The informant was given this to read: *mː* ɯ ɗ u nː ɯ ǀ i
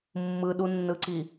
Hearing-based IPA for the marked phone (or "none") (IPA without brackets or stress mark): mː